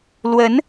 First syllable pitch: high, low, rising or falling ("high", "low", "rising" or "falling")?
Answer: rising